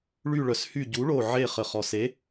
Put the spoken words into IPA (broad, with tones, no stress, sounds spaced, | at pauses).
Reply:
ɭ y˧˩ ɭ œ˩ s h y˧˩ ɟ u˩˥ ɭ o˧˩ ʕ e˧˩ χ ə˩ χ ɔ˩ s e˩˥